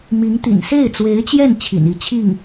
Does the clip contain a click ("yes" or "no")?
no